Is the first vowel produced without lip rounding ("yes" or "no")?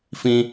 yes